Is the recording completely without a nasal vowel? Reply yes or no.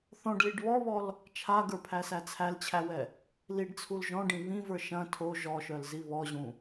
no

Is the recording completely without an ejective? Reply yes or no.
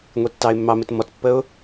yes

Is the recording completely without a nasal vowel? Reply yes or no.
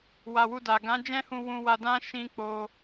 no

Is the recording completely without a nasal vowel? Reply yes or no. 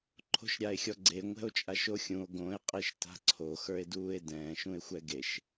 no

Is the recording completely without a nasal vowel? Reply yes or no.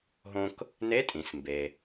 no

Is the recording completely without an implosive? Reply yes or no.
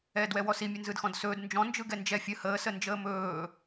yes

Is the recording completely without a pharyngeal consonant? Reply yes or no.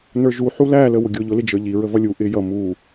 no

